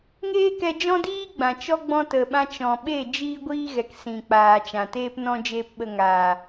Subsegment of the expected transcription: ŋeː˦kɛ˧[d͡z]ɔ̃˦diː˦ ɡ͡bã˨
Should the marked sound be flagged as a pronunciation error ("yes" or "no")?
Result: yes